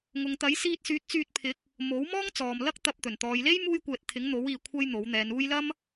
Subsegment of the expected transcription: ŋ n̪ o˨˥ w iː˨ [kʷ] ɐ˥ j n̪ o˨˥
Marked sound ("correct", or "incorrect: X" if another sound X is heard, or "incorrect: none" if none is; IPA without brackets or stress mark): incorrect: kʷʰ